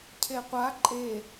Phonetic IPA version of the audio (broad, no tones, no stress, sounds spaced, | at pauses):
cʰ e qʷ a ǃʼ e